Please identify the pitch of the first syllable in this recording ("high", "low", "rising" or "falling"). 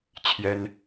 high